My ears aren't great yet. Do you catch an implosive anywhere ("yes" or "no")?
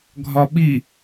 yes